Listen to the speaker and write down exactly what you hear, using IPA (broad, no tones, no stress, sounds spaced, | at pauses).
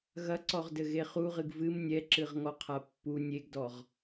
ɣ ɐ ǀ ɔ ʁ d ɘ ɣ e χ u ʁ ɨ ɡ v ɨ m nʲ ɛ ǁ ɨ ʁ ŋ ɔ qʰ a pː u nʲ e ɡ d ɔ ʁ